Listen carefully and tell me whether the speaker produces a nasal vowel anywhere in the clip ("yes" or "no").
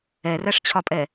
no